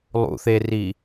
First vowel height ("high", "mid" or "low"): high